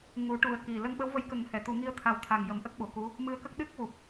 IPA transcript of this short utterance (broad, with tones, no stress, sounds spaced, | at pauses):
ŋ u˨˩˦ ʈ u˨˩˦ ə̯ k i˨˩ l ə˧ ŋ ɓ ə˧˥ w v ə˧˥ j k ə˨˩˦ ŋ h ɛ˨˩˨ t̪ u˨˩˦ ŋ i˧ ə̯ t̪ʰ a˨˩ w t̪ʰ a˨˩ ŋ j ə˨˩˦ m ʔ ə˦˥ k̚ ɓ o˨˩˨ k u˧˥ | m ɨ˧˥ ə̯ k ə˦˥ k̚ ɗ ɨ˦˥ k̚ w u˨˩ p̚